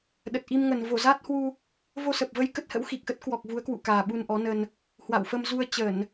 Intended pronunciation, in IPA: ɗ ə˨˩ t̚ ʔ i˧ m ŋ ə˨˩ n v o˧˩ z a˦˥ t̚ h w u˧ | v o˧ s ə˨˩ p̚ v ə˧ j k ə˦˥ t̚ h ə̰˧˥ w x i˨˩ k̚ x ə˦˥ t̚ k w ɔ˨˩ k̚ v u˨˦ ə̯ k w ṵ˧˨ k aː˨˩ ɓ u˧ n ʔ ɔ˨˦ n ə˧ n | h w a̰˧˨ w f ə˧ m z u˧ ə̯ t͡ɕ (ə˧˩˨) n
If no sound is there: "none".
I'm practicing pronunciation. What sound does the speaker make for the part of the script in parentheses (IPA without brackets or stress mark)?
ə˧˩˨